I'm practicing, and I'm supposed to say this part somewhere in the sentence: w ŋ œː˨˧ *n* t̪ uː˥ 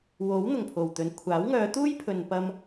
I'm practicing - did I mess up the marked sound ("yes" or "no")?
yes